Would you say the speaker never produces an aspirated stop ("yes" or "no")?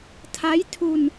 no